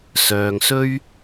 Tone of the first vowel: low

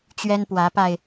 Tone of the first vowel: high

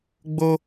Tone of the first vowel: high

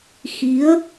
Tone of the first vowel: rising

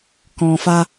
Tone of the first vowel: low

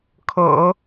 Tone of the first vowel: low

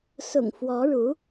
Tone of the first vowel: low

